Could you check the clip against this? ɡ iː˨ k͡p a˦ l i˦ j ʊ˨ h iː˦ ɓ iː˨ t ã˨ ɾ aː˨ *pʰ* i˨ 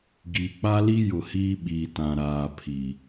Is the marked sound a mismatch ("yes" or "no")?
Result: no